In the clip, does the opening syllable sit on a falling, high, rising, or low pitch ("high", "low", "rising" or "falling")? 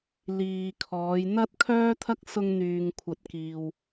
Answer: low